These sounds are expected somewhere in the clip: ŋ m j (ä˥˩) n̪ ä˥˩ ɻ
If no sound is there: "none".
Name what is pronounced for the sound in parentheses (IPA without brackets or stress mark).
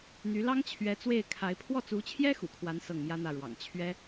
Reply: ä˥